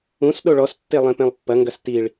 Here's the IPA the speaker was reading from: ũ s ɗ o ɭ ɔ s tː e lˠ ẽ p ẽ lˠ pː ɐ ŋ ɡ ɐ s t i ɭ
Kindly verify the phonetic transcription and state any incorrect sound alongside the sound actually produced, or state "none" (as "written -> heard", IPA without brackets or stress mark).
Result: none